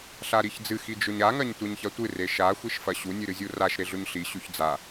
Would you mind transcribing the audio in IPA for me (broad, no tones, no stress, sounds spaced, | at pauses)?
ɬ a ɾ i ç d͡z ɨ x i d͡ʒ ɵ ɲ a ŋ ɐ ɲ tʷ e ɲ ç ɐ tʷ ɨ r e ʃ a xʷ i ʃ f ɐ ɕ u nʲ ɨ ɾ ɨ zʲ u r a ʃ ɾ e ɮ ɵ ɲ ɬ i ɕ ʉ ç d͡z a